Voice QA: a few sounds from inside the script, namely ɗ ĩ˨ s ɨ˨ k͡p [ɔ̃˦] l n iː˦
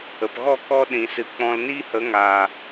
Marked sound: incorrect: ɔ̃˧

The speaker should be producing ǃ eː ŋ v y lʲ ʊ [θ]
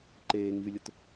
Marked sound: incorrect: t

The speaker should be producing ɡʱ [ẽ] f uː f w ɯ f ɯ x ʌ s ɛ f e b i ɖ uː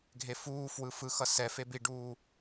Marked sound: incorrect: e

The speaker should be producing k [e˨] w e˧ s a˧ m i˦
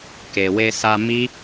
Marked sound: correct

